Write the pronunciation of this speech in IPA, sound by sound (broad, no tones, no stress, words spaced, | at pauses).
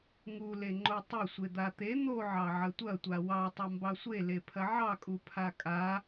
ŋule ŋ͡ǃotˤɐ sʷed̪at̪e n̪oʕɑ ʕɐtʷɐ tʷawɑtˤa mbɑsʷe lepʰɐʕɑkʼu pʰakʼa